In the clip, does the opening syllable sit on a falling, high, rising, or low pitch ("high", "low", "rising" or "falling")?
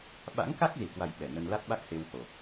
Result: rising